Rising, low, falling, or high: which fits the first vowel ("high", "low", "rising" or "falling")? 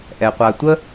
low